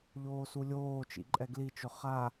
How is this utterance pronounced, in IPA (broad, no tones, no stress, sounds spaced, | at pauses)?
ʎ oː s u lʲ oː t͡ʃ ḭ ǃʼ ɛ ɡ l i t͡ʃ ʊ χ a